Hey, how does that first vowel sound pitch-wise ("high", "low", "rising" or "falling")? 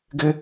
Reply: high